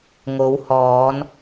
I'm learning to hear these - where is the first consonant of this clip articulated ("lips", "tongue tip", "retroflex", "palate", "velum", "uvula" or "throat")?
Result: velum